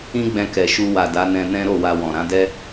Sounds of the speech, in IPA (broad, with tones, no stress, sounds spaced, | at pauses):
ĩ˦ ɡ͡b ɛ̃˧ k ɛ˨ ʃ u˧ w a˨ d a˨˦ n ɛ̃˧ n ɛ̃˦ ɾ o˦˨ w a˧ w ɔ̃˨ ɾ ã˨˦ d ɛ˦